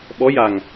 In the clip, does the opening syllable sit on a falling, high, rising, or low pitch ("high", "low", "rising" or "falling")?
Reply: rising